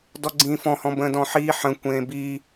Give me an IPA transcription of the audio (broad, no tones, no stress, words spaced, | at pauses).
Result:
dɔɡ͡ǀĩːfɔ̃hɔ̃ bə̃ːdɔ̃ħiː ħə̃ kʷẽːbi